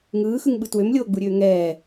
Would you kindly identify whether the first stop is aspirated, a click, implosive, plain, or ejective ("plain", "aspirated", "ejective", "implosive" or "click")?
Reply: implosive